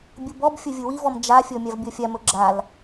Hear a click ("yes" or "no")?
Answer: yes